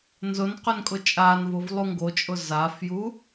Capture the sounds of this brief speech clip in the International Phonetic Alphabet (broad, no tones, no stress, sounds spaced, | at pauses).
n z ʊ n q ʏ n kʼ ʊ t͡ʃʼ aː n v ʊ v lˠ u ŋ ɡ o t͡ʃʼ ʊ z a f j u